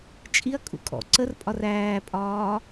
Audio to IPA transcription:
t͡ʃʼ i ɐ̯ kʼ ṵ kʼ ɔ̰ ǀ ə r pʼ ɒ r æː pʼ ɒː

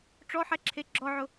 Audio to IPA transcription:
ʈ͡ʂ ɔ ħ ɛ ǁʰ e ɡ͡ǁ ɔ ʕ ʊ

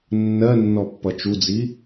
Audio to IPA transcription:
nː ɜ nː ɔ pː ʌ t͡ʃ u d͡z i

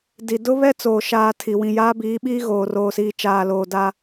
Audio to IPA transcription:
d i˨ d ʊ˦ β ɛ˦ t͡s oː˨ ʃ aː˨ tʰ i˨ w ĩ˨ j aː˦ b iː˨˦ ɓ iː˦ ɣ oː˨ r oː˨ s iː˨ t͡ʃ aː˨ l oː˨ d a˦

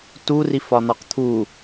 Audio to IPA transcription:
t u r i f ɒ n̪ ɒ q t̪ʰ u

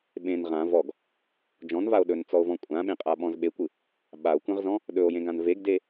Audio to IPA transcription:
ɓ ẽ n ʁ ã v ɔ ɡ | d͡ʒ ɔ̃ n v a o̯ ɗ ɵ n t͡s ɔ o̯ v ɔ̃ kʷʼ ã ɓ ẽ qʼ a ɓ ɔ̃ z ɓ e kʷ ɯ | ɓ a o̯ kʷ ẽ ʁ z ɔ̃ | ɗ ɵ o̯ j ẽ ɡ ã n v e ɡ d e

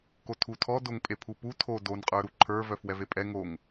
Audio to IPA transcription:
k o tʰ u tʰ ɔ d o ŋ pʼ e pʰ u p u tʰ o d o n qʼ ə˞ ɾ u ǃʰ ə˞ v œ f w ɛ v e pʼ ɛ ŋ o ŋ

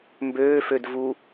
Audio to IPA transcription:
m b øː f ø d v u

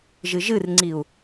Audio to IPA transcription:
ʒ ɨ ʒ ɨ r ŋ͡ǀ i u̯

